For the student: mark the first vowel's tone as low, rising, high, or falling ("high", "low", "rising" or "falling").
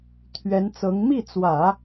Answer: rising